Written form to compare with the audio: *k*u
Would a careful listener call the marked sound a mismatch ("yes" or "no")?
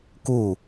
no